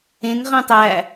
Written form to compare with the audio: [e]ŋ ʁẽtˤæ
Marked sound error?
yes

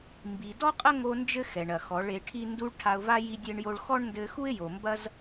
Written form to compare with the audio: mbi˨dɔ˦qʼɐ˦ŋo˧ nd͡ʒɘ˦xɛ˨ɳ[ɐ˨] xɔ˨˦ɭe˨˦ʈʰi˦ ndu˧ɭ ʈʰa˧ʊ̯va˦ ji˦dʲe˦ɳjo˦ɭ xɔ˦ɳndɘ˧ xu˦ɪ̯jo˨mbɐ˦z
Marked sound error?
no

